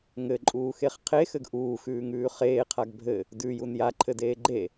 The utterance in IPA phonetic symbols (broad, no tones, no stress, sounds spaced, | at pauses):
ŋ ɘ ǃʼ uː x e χ qʰ e x ɘ ɡ ʔ uː x ʉː ŋ ʉː χ eː qʰ a ɡ bʱ ɘ | d ʉ j u n j a ǃʰ ɘ d eː ɡ͡ǃ e